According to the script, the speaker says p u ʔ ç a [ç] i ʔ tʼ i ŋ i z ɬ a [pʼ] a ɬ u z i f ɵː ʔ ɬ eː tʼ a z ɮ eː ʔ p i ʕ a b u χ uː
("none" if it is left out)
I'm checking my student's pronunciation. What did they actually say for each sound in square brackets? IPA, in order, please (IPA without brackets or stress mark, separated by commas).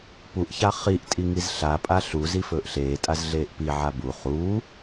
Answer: χ, pʼ